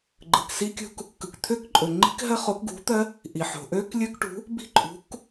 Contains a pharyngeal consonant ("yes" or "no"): yes